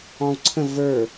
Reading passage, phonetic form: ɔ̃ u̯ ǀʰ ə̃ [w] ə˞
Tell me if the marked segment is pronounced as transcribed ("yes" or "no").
no